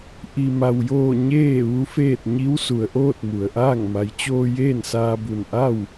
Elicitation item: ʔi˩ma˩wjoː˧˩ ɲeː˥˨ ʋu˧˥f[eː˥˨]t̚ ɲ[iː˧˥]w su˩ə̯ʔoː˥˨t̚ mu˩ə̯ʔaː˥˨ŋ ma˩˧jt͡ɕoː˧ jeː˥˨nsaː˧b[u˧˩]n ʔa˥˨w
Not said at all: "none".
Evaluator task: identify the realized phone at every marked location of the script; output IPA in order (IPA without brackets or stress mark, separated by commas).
eː˥˨, i˧˥, u˧˩